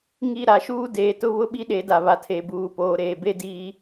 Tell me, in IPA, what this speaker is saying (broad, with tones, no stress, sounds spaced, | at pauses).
ŋ i˦˨ ɾ a˨ ʃ uː˦ d eː˨ t ʊ˦ β ʊ˦ ɓ i˦ ɗ e˨˦ d a˨ β a˨ tʰ e˨ b uː˨ p oː˨ ɾ eː˨ b e˦ d iː˦